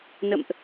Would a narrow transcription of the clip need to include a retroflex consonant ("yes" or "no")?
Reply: no